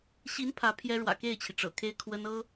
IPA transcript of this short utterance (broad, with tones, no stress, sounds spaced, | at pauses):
ɕ i˧˥ n pʰ ä˧˥ pʰ j ɛ˥ ɻ w ä̰˨˩ k e˥˩ ɪ̯ t͡ɕʰ i˩ ʈ͡ʂ ɤ̰˨˩ kʰ e˥ ɪ̯ kʰ w ə˥ n ɤ˥